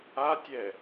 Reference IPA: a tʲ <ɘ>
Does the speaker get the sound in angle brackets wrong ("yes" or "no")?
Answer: yes